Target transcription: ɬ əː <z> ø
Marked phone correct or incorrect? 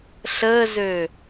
correct